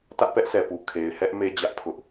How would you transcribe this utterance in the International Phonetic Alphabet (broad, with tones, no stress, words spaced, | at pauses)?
tä˦ʔpɛ˦ʔsʰɛ˨pu˨ kʰe˨ɪ̯hɛ˦ʔ me˦d͡ʑä˦ʔ pʰʊ˦ʔ